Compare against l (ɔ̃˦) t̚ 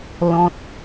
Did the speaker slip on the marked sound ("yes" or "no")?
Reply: no